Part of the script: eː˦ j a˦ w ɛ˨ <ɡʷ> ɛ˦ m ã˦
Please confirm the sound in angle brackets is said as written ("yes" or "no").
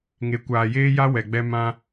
no